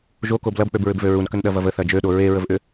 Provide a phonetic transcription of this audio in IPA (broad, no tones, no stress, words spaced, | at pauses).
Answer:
ʒokob lɐbk͡pøbɹʏbvø ɹunkənɗɐvɐv əθɐ d͡ʒøɗo ɹeɹəvʔʏ